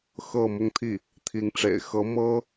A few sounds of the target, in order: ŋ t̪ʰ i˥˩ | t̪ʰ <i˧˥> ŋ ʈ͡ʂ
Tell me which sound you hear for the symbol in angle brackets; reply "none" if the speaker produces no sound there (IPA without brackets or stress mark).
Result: i˧˥